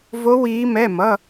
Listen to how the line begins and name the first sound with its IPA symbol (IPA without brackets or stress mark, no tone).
v